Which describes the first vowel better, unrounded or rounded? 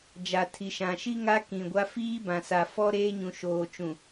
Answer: unrounded